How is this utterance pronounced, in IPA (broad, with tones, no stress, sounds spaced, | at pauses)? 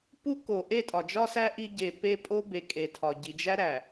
p u˦ k o˨ ʔ e˦˨ tʼ ɒ˨ d͡ʒ ɒ˦ s æ˦ ʔ i˦ ɟ e˨ p e˦ pʼ o˦ b e˨ kʼ e˨ tʰ ɒ˨ ɟ i˨ d͡ʒ æ˦ ɾ æ˨